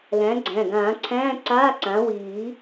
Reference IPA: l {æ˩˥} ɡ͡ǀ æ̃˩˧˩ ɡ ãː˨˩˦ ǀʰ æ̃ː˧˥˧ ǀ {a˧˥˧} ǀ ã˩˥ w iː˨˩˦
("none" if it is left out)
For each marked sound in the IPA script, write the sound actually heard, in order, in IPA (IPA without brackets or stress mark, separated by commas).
æ̃˩˥, aː˧˥˧